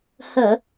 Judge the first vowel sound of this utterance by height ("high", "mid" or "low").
mid